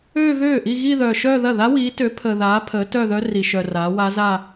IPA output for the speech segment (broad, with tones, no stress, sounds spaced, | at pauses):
øː˥˧ ɣ øː˥˩ ʔ i˥˧ ɣ i˥˧ ð œː˨ ʃ œː˥˧ ð ɐ˥˩ ð a˦˥ w iː˨˦ t ø˨˦ pʰ əː˨ ð aː˨˦ pʰ əː˨˦ t œ˥˧ ð œ˦˥ r i˨ ʃ œ˨ r aː˨˦ w a˦˥ z a˥˧